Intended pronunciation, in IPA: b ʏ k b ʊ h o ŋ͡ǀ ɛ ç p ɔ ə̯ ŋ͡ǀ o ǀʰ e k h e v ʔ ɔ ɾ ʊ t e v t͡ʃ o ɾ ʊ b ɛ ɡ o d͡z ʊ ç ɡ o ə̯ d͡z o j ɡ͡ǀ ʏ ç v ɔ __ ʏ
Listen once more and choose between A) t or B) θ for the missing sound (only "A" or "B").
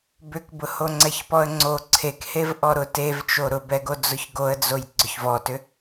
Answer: A